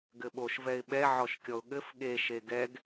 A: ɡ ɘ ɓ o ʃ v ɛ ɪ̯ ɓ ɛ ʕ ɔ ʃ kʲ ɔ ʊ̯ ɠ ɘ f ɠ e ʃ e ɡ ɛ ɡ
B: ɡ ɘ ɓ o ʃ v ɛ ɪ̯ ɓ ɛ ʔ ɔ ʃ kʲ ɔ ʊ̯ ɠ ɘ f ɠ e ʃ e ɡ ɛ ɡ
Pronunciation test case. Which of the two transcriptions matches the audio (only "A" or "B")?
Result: A